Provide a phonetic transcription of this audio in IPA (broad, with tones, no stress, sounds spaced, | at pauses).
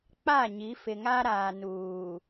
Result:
k͡p a˦˨ ɲ i˨˦ f ɪ˨ ŋ a˦ ɾ aː˨ n uː˨